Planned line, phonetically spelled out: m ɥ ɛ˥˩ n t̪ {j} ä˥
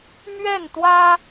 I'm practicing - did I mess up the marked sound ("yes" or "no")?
yes